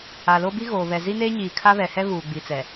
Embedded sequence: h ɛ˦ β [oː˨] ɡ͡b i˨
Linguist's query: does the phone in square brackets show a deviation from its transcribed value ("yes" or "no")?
yes